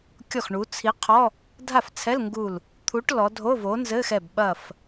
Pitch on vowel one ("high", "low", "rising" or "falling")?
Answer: falling